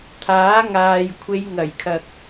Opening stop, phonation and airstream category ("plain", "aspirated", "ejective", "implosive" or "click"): aspirated